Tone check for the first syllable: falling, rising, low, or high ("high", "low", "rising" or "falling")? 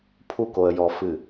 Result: high